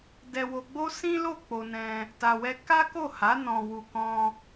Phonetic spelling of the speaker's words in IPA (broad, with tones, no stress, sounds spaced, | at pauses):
d ɛ˧ w o˧ ɡ͡b o˦ s ĩ˦ l o˦˨ k͡p o˧ n ɛ̃˧ | t a˧ w ɛ˦ k a˦ k o˦˨ h a˨˦ n ɔ̃˧ w u˧ k ɔ̃˧